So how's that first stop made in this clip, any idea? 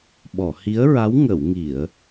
implosive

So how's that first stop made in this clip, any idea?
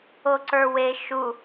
click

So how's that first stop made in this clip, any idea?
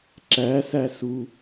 click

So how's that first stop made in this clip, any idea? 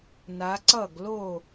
click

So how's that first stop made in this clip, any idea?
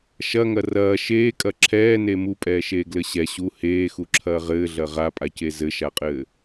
ejective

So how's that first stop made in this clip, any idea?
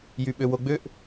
implosive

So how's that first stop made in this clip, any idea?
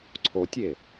click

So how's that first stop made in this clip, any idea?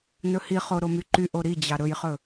click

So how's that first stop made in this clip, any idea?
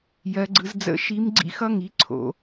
click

